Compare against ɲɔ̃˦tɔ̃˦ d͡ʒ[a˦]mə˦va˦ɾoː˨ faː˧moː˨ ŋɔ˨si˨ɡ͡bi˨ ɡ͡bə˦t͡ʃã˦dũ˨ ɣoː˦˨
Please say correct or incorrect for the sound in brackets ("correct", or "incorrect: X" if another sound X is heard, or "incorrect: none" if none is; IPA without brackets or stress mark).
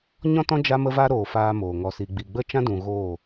correct